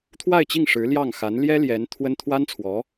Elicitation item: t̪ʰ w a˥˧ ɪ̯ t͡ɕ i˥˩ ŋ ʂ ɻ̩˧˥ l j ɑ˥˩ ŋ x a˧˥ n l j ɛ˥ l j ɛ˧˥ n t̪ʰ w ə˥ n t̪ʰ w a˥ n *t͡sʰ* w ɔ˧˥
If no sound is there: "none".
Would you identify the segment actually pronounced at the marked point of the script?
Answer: t͡sʰ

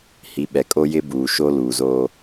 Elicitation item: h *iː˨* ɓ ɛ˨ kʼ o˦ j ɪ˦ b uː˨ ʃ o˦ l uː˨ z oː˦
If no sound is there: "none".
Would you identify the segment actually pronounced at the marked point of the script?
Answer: i˨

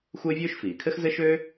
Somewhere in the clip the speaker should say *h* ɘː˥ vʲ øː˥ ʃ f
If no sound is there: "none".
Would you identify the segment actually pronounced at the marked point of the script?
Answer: xʷ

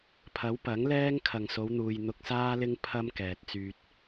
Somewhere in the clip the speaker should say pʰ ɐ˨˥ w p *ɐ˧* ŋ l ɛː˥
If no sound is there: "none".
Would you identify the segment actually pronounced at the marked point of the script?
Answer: ɐ˨˥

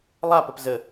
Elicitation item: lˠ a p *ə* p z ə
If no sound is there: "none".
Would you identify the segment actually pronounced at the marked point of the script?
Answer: ə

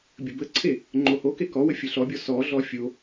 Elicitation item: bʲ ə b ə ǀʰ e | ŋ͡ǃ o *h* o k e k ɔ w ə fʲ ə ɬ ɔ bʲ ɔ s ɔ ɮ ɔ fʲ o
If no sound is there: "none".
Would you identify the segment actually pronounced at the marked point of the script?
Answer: h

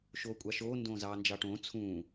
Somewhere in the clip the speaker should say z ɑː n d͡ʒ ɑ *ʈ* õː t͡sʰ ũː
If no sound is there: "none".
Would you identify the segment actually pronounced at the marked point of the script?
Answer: ʈ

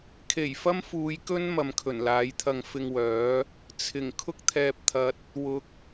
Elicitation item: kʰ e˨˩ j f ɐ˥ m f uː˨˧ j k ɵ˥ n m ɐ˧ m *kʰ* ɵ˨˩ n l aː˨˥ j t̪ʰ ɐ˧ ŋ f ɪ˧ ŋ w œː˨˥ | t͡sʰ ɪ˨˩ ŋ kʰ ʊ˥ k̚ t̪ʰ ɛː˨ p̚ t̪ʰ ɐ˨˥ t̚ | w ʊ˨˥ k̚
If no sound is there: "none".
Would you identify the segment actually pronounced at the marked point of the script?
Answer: kʰ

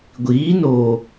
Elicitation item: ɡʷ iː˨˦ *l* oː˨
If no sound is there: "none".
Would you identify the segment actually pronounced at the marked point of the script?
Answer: n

